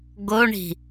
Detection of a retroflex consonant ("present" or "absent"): present